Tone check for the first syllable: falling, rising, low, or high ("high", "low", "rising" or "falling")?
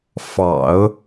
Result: low